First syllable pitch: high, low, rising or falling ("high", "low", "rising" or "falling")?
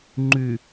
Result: low